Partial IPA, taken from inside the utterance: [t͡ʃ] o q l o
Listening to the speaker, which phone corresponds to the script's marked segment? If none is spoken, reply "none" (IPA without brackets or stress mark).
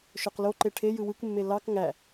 ʃ